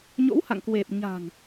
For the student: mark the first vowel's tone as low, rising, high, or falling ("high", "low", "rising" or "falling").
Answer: rising